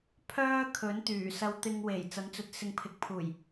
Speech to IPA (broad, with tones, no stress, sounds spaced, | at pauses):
pʰ œː˥ kʰ ɵ˨˥ n t̪ yː˨˩ s ɐ˧ w t̪ ɪ˧ ŋ w e˨˩ j t͡s ɐ˨˥ n t͡s ɵ˨ t̚ s ɪ˨˧ ŋ pʰ ɪ˨ k̚ pʰ uː˨˩ j